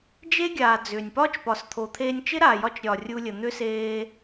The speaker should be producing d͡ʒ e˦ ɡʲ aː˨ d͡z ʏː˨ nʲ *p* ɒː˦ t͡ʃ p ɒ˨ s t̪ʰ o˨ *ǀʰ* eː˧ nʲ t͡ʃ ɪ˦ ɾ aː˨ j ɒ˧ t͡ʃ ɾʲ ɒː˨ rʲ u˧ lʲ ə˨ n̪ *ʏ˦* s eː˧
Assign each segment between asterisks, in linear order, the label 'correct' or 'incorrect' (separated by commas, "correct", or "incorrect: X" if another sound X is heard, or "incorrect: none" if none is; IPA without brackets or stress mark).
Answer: correct, incorrect: t̪ʰ, correct